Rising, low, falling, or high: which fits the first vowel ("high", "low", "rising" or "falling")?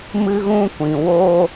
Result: high